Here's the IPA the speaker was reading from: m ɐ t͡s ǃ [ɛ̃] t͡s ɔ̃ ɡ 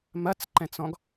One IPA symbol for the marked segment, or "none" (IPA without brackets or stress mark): ɛ̃